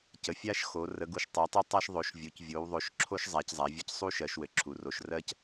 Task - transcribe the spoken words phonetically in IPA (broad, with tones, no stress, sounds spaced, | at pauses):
c ə˩˧ fʲ a˦ ʃ x o˩˧ r ə˩˧ ɡ u˩˧ ʃ tˤ ɜ˩˧ tˤ o˦ tˤ a˦ ʃ ðˤ o˩˧ ʃ vʲ u˩˧ c vʲ o˩˧ w ðˤ o˩˧ ʃ ǁʰ o˦ ʃ zˤ a˩˧ c zˤ a˩˧ vʲ ɘ˦ c sˤ u˦ ʃ ɜ˩˧ ʃ w ɘ˩˧ ǁʰ u˩˧ r o˩˧ ʃ r ɜ˦ c